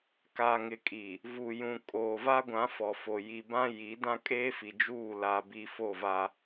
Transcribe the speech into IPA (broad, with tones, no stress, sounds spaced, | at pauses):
k a˨ ŋ ɪ˨ kʼ i˨ | v u˨ j ũ˨ kʼ oː˨ v a˦ ɡʷ ã˨˦ f ɔ˨ f o˨ j i˨ b ã˦ j i˨˦ d ã˦ kʼ eː˦ f i˨ d͡ʒ uː˦˨ l a˨ b i˨ f o˦˨ v a˦